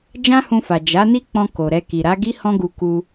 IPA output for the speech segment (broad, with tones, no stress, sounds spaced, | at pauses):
d͡ʒ ã˦ h ũ˧ f a˨ d͡ʒ a˨˦ n i˦ k͡p ɔ̃˧ k o˨ ɾ ɛ˧ k i˨ ɾ a˨˦ ɡ i˦ h ɔ̃˦ ɡ u˧ k u˧